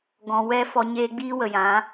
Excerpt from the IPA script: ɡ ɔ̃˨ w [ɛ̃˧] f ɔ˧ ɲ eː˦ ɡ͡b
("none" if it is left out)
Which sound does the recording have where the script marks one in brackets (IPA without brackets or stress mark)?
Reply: ɛ˧